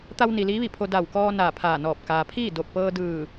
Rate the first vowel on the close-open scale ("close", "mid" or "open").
open